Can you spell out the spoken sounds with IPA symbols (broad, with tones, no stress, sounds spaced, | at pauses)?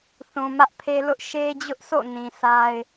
θ ũ˨ m ä˦ ʔ pʰ e˦ l ʊ˦ ʔ ʃ e˦ d͡ʑ ʊ˦ ʔ sʰ o̰˦˨ n ĩ˨ sʰ a˦ ɪ̯